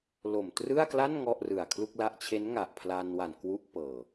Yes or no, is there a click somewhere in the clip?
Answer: no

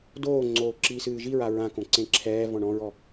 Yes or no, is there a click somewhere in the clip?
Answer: yes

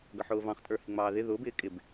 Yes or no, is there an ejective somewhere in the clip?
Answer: yes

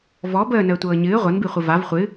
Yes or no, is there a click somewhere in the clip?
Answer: no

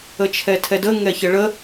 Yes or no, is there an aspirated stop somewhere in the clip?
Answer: yes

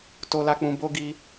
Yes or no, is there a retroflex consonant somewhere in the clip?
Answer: no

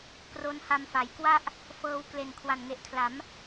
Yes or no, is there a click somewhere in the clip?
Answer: no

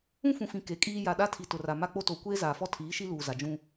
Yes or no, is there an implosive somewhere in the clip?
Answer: yes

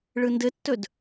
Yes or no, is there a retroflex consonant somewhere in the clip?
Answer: yes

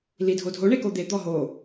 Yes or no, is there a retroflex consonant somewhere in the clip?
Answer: yes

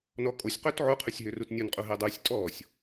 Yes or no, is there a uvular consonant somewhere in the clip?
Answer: yes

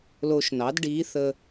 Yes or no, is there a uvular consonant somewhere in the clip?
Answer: no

